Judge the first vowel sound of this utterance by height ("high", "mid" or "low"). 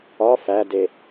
low